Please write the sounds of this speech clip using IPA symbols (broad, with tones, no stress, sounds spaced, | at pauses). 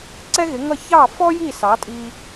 ǀ ɛ˥ ɣ ɪ˩˥ ŋ ʌ˥˩ ç ɑ˥˩ f ɔ˥ j i˥˩ s ɑ˩˥ tʼ i˧